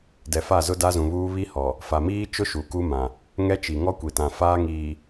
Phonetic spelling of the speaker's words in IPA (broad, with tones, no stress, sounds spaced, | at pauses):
d ɛ˨ f a˦˨ z ʊ˦ d a˦ z ũ˨ β uː˦ β i˦ h ɔ˨ | f a˨ m iː˦ t͡ʃ ʊ˦ ʃ u˨ k u˦ m ã˨ | ŋ ɛ˦ t͡ʃ i˨ ŋ ɔ˦ kʷ i˨ t ã˨ f aː˦ ŋ iː˨